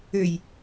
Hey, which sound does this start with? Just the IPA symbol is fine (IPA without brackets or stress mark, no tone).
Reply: ø